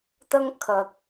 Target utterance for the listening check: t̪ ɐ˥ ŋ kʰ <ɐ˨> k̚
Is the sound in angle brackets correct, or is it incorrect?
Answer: correct